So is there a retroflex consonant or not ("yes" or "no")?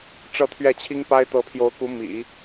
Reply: yes